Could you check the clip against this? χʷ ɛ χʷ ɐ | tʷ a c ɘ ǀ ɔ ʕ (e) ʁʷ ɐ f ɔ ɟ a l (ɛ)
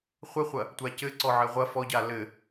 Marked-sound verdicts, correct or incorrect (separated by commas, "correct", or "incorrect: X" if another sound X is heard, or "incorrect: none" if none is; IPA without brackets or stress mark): incorrect: ɘ, incorrect: ɘ